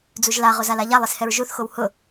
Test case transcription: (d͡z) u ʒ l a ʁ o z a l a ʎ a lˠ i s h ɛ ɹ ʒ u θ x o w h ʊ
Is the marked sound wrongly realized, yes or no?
no